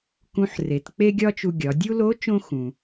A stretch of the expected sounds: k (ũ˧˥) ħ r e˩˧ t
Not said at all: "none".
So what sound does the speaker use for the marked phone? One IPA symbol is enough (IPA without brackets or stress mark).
ũ˧˥